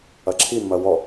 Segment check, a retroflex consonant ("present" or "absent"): absent